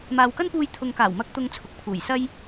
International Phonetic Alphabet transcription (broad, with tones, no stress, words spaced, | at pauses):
maː˨wkɐ˥npuː˧j t̪ʰʊ˨ŋkaː˨˩wmɐ˧k̚ t̪ʊ˧ŋt͡sʰʊ˨k̚pʰuː˨˩jsɐ˥j